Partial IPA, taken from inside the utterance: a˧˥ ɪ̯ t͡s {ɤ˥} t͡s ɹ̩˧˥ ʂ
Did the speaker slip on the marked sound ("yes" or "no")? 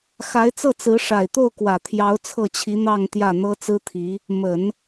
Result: yes